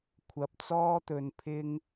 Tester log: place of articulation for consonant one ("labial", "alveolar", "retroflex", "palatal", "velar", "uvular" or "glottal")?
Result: velar